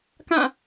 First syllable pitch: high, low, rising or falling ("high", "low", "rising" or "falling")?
falling